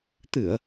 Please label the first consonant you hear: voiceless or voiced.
voiceless